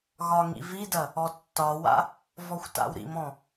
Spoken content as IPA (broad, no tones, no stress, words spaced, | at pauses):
ɣɒŋḭ vidɐ | ɔtːɒwa̰ | vɔxʷta̰wɾḭmɔ̃